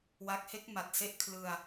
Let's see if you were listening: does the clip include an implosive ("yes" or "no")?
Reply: no